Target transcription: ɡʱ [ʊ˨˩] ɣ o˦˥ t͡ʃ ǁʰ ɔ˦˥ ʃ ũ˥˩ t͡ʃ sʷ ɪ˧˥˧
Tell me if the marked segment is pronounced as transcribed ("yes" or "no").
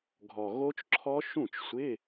no